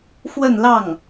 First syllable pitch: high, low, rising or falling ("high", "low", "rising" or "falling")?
falling